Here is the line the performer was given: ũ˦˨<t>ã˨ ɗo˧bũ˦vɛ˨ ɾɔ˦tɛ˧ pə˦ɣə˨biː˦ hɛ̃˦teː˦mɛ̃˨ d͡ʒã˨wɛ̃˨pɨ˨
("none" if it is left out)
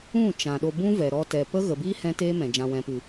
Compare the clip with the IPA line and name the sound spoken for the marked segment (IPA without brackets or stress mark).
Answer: t͡ʃ